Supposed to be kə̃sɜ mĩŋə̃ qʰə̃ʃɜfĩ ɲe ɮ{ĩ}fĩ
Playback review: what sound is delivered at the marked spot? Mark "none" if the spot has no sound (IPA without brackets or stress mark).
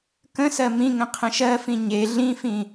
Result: ĩ